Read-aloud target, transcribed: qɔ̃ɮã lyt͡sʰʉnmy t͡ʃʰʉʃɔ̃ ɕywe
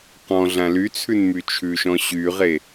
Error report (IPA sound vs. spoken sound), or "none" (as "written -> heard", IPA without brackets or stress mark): w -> ʁ